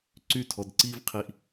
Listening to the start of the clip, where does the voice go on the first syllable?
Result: falling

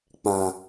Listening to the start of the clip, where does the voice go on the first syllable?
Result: low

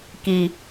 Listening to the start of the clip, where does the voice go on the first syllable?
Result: low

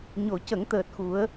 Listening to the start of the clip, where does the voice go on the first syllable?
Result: low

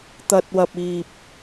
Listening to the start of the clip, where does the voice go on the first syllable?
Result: low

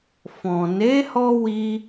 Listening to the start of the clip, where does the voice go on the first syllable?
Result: low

